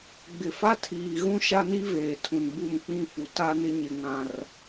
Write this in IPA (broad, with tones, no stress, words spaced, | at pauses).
ɡ͡bɪ˨fa˦tʰiː˨ɣũ˦ ʃa˦ni˦veː˨tʰũ˨n bu˦˨mk͡pĩ˦fu˨ ta˦nɪ˦ ɲɪ˦ ŋã˦r